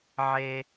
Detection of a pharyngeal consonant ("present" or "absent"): present